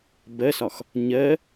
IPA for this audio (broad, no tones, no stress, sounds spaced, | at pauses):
b ɜ s ɒ x | ɲ ɜ